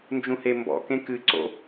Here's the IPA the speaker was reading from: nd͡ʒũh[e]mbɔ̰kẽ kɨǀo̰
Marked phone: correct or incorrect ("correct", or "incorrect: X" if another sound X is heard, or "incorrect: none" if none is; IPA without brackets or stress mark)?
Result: correct